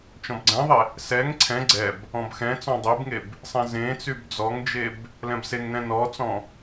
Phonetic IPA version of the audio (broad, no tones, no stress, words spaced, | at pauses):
t͡ʃɔ̃bɡ͡ǀɛ̃ðˤe | sɛŋ ǀʰɛ̃ ɡ͡ǀɛb | ɔ̃bxɛ̃t͡sɔ̃ dˤebŋeb | sˤɛ̃zẽt͡syb d͡zɔŋd͡ʒeb | lɛ̃bseŋnɛ̃ nɔt͡sɔ̃